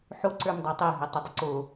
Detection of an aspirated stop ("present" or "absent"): absent